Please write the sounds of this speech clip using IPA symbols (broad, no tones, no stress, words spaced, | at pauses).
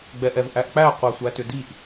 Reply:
ɡ͡bɛʔɛvʔæʔk͡pæ qʷæsʷætʏdiʔ